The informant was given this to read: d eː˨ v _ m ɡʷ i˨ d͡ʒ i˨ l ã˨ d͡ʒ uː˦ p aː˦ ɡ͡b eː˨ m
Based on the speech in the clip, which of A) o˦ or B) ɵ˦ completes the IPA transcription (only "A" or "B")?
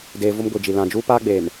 A